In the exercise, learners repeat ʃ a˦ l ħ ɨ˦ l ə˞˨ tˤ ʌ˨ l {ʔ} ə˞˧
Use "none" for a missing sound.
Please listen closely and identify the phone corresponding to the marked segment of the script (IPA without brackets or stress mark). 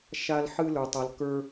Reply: k